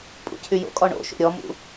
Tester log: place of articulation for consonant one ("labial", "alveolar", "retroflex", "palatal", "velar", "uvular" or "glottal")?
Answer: labial